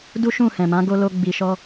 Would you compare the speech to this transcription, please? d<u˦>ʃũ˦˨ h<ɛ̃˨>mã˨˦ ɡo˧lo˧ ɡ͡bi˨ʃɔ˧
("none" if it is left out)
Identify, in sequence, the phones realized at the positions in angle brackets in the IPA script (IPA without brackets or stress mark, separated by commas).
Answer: u˦, ɛ̃˨